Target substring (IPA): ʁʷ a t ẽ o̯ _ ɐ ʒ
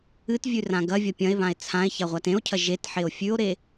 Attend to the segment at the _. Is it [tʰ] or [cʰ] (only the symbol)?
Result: cʰ